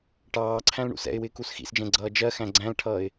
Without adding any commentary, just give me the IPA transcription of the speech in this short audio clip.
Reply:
ʈɑːǀʰæ̃l ɳṵsɛ̰ɪ̯wɪː kusxḭsd͡ʒɛ̃ ɡ͡ǀʌːd͡ʒɜxæ̃ ɡ͡ǀæ̃lʈʰʌːɪ̯

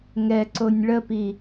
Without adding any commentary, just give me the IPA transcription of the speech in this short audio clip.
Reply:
ŋɛǀonʲ ɭəpi

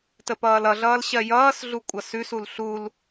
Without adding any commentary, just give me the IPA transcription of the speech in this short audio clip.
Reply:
təpʌːlʌɮʌːl ɕɜjʌːsɮu kʷʼʌsʉsul ɬul

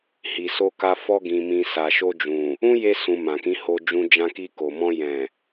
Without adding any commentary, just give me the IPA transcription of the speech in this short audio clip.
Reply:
hi˨so˧ka˧ fɔ˧ɡĩ˨ mĩ˨ sa˨ʃo˧d͡ʒũ˨ | ũ˦je˧sũ˨ mã˨kĩ˨˦ho˧d͡ʒũ˧ d͡ʒã˧ki˧ko˨mɔ̃˧ jɛ̃˨

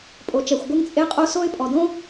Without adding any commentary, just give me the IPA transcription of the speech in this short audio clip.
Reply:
pʼo˨t͡ʃɛ˨xʷɡʷɘ˦ŋ t͡sʼe˦qʼo˦so˦ɪ̯ pʼɔ˨dõ˦

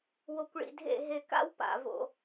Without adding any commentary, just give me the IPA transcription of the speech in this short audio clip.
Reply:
wo˨kʷɭḭ˨dʱḛ˦˨ ɦe˨ka̰˦w pa̰˨ vo̰˨

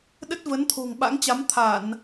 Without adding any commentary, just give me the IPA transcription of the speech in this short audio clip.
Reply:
ɗə˦˥t̚və˨˦nt̪ʰo̤˨˩ŋ ɓa̰˧˥ŋt͡ɕa˨˦m t̪ʰa˧˩˨n

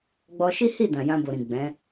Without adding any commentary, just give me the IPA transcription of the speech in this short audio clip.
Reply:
ɡ͡bɔ˧ʃi˦hi˦˨ dã˨jã˧bo˨ɾĩ˨ ɡ͡bɛ̃˨˦

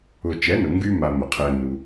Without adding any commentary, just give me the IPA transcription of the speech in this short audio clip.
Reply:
ʊ˨t͡ʃɛ˨˦nʊ˨ ŋɡy˦ ma˧mə˨qʰɛ˧ nu˧

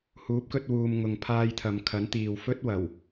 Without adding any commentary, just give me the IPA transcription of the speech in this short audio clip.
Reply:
huː˨˥p̚kɵ˧t̚wuː˨m ŋʊ˨ŋ pʰaː˧jt̪ʰɐ˨mkʰɐ˨˥nt̪iː˨w fɵ˥t̚wɐ˨˩w

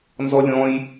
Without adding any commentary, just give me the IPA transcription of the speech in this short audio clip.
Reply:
nzɔlʲɔ̃j

